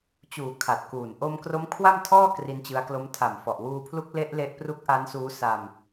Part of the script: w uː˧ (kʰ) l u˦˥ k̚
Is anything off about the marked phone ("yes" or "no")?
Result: yes